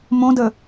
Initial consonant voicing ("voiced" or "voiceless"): voiced